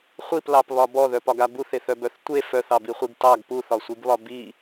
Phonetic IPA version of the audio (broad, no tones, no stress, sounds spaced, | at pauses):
χʷ i p l ɑ p β ɒ b ɔ ð œ p ɒ ɡ a b u θ e θ œ b œ θ tʷ e f œ θ ɑ b i χʷ i ɡ t ɑ ɡ p u θ ɒ sʷ i ɡ β ɒ b i